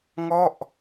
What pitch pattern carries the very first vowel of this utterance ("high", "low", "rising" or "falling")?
falling